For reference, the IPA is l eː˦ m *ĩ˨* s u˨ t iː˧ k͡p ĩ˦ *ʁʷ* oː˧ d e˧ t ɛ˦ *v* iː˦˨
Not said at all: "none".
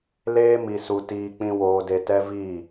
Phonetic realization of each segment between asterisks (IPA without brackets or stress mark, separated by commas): i˨, w, v